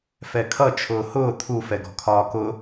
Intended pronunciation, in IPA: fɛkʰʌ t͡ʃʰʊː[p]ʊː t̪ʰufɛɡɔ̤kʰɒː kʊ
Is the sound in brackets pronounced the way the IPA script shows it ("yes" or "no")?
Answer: no